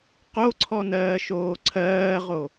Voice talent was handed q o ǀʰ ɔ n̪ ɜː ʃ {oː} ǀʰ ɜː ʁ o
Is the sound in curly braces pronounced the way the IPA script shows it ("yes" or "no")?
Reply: yes